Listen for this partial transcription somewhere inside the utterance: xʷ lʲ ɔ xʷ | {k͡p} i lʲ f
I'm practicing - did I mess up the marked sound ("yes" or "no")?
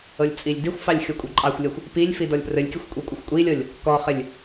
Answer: yes